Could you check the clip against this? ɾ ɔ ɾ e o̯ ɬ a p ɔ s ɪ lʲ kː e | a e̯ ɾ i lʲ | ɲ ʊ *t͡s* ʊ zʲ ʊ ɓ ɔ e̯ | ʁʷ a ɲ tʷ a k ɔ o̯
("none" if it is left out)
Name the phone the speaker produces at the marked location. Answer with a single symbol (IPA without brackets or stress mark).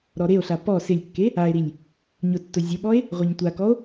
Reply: tː